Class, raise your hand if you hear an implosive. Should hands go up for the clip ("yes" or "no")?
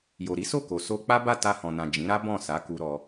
no